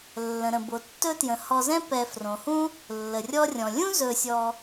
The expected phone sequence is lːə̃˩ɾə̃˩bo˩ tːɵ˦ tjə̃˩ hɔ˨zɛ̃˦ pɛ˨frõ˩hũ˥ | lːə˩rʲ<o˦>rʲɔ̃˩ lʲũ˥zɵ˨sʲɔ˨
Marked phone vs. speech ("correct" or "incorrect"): incorrect